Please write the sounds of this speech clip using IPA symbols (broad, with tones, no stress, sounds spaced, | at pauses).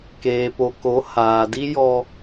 k eː˨ p o˨ k o˨˦ h aː˨ d i˦ j ɔ˦